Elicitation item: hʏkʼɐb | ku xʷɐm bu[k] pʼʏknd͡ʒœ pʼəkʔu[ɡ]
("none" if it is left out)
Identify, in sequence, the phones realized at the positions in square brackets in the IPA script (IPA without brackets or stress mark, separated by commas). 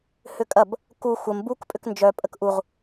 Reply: k, ʁ